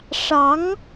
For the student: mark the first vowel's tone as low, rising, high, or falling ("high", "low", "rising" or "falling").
rising